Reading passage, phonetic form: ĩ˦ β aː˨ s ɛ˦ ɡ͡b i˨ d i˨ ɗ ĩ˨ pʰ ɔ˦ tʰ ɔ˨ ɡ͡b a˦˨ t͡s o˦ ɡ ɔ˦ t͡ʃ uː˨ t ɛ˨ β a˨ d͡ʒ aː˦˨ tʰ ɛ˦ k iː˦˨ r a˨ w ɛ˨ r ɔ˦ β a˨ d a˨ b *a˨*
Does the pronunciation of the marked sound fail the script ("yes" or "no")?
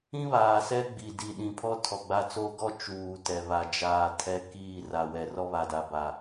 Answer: no